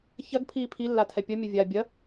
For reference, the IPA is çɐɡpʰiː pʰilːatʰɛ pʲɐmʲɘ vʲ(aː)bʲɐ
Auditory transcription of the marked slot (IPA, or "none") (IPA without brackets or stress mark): aː